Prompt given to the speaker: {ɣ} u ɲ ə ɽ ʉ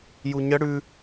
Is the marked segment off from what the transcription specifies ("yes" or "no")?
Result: yes